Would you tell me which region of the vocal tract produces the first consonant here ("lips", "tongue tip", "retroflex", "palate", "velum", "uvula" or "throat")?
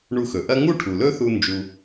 retroflex